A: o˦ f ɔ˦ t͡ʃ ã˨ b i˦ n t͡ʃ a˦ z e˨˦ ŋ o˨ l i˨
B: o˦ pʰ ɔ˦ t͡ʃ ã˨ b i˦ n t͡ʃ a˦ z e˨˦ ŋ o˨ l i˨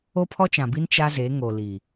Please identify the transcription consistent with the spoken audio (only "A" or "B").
B